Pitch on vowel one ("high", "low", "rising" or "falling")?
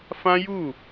high